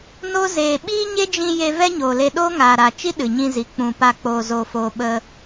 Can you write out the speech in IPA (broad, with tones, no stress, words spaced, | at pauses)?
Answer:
no˦ zeː˨ɓiː˦ɲe˦d͡ʒĩ˧ je˧ vɛ˦ɲoː˨le˧ ɗoː˦ŋaː˨ɾa˨t͡ʃi˦ ɗɨ˨ɲĩ˧zi˨˦ k͡pũ˨ pa˦˨ k͡poː˧zoː˧foː˧ ɓə˧